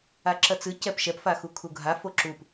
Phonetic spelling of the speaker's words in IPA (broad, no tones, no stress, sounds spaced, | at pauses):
a ǁ ɐ t͡s ɨ c ɛ p ʃ ɛ p f a x u kʰ u ɡʱ a f o ǁ u p